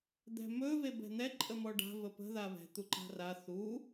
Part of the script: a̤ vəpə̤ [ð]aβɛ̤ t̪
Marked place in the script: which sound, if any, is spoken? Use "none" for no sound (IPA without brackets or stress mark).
ð